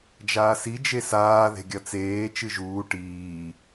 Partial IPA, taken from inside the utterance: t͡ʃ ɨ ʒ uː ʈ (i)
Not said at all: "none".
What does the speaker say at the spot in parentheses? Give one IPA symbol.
iː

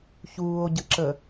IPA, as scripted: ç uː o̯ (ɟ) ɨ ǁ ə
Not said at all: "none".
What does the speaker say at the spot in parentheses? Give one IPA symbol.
ɟ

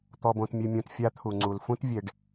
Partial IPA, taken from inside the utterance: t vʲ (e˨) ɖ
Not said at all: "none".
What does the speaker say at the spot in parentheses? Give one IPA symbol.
e˨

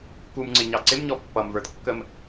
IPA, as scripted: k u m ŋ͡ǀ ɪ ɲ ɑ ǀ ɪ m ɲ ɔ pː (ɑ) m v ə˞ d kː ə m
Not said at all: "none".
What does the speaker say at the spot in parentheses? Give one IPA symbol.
ʌ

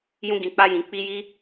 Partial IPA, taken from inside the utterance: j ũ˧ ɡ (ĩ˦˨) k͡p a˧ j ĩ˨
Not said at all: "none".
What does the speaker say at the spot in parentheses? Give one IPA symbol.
ĩ˨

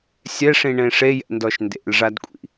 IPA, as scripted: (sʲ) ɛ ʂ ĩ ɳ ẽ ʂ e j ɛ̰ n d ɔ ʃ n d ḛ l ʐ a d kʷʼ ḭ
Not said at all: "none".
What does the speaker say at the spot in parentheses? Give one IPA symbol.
sʲ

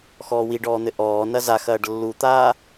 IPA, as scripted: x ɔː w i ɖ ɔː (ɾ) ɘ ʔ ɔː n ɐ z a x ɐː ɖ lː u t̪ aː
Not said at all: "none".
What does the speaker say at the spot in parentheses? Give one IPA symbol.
n̪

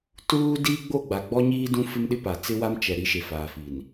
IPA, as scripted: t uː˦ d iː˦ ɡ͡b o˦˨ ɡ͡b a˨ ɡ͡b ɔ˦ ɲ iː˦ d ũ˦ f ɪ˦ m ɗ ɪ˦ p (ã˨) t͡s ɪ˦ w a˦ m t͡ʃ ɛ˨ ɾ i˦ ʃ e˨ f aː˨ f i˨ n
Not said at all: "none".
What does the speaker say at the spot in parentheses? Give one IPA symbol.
a˨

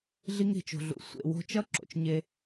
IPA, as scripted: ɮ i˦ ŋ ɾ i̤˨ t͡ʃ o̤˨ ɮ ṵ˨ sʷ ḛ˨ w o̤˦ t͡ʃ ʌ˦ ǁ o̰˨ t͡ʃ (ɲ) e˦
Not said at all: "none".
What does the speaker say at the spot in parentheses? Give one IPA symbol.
ɲ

